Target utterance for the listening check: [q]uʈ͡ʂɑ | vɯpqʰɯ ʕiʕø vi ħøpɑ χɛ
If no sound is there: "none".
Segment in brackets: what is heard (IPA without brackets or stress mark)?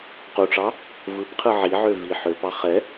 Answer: q